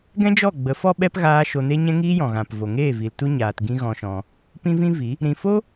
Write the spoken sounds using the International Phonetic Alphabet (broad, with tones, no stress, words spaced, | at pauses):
ɡɛ̃˦d͡ʒɔ˦˨ɡ͡bə˨˦ fɔ˦ɓɛ˦p ɣaː˦ʃo˧ ne˦ɲɛ̃˦ŋiː˦jɔ̃˨ ɣã˨pvo˨ŋeː˦˨ vi˨ltu˧ɲaː˨t ɡĩ˦ɣɔ̃˧ʃɔ̃˧ | pĩ˦vĩ˦vi˨˦ | ɾĩ˨fo˦